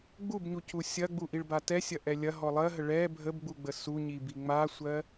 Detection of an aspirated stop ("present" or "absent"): absent